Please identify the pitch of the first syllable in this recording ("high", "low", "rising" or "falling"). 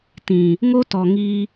low